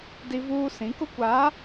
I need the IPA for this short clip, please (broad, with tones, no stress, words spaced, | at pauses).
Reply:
di˦vuː˦ sĩ˨˦kʊ˦kʷaː˨˦